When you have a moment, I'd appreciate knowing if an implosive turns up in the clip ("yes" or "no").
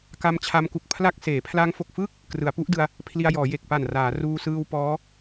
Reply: no